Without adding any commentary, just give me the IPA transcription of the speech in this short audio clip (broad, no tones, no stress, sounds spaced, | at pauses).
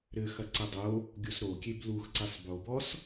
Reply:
ɾ ɘ x ɐ ǀ ɘ dˤ o | ɡʲ o s ɾ o kʲ e b l u x ǀ i sˤ b o b ɔ s